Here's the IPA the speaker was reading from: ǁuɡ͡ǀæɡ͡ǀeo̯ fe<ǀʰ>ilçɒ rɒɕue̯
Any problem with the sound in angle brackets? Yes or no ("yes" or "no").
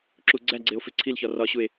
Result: no